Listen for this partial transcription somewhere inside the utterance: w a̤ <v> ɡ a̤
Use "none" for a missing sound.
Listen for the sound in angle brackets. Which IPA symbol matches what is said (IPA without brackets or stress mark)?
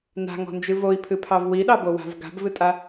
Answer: v